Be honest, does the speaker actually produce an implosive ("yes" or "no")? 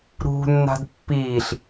no